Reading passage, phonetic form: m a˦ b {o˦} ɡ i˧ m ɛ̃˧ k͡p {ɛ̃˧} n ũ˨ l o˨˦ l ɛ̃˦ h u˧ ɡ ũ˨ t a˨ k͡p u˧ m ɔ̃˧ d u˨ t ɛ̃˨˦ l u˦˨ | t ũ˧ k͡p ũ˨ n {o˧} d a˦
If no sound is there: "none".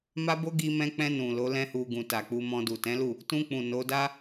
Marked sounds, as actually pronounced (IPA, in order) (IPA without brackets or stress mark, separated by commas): o˦, ɛ̃˧, o˨˦